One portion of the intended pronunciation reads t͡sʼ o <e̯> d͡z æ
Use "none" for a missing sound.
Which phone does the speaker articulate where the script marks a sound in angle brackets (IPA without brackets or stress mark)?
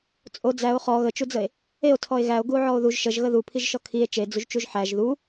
none